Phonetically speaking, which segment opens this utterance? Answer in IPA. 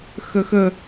x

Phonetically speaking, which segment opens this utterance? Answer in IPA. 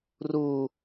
r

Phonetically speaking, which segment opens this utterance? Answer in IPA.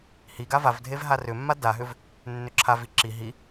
h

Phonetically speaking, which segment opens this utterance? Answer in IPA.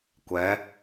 kʷ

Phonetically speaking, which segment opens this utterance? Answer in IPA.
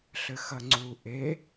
ɬ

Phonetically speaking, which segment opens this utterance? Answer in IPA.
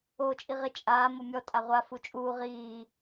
oː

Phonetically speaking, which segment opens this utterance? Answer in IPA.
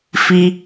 f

